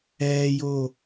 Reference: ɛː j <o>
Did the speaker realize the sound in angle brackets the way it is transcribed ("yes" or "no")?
no